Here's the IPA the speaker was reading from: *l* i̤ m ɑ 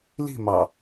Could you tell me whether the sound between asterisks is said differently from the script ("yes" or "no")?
no